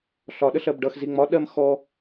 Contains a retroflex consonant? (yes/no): yes